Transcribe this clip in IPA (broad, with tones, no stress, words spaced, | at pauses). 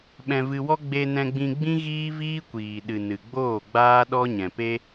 ɓɛ̃˧vɨ˧wɔ˦ ɡ͡be˧nɛ̃˧ɡ͡bĩ˧ɡ͡bĩ˦ ɣiː˦viː˦kʷiː˨ ɗɨ˨ nɨ˨ɡ͡boː˦˨ɡ͡baː˦ ɗɔ˦ɲɛ̃˨pe˦